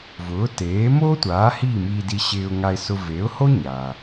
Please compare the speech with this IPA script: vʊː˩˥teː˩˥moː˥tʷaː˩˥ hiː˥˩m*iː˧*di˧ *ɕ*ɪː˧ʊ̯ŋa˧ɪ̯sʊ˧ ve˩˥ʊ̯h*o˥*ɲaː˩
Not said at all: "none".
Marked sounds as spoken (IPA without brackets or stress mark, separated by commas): iː˧, ɕ, o˥